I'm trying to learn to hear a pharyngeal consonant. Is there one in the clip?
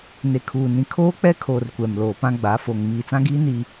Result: no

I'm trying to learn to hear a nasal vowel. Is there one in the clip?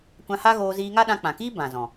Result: yes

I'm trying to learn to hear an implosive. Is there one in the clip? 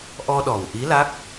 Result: yes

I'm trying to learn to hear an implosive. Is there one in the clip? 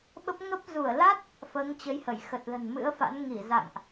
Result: yes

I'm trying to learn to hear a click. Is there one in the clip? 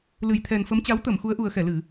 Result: no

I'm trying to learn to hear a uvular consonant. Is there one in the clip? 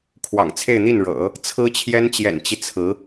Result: no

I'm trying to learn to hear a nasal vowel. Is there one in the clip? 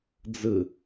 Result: no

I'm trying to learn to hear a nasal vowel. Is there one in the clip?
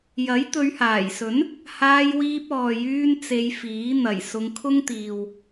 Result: no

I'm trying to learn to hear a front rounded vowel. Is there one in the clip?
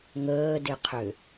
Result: yes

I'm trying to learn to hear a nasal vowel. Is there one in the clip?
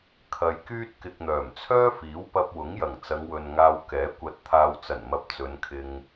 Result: no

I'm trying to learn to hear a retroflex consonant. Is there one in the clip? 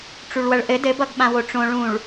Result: yes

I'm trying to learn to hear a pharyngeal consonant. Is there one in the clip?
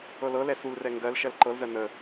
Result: no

